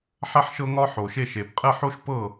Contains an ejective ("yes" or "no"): yes